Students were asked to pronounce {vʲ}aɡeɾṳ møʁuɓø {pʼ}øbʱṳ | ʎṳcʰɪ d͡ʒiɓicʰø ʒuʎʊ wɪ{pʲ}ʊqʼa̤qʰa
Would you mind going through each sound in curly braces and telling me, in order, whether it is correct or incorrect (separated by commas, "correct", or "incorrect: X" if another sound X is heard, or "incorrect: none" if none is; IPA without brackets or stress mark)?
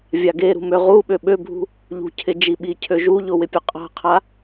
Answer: correct, incorrect: ɓ, correct